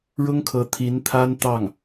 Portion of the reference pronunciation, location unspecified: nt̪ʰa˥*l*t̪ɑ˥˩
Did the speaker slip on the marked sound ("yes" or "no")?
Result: yes